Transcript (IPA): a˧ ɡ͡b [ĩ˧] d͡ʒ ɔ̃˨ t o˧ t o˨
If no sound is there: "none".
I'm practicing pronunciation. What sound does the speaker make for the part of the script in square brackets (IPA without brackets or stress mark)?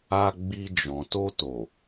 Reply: i˧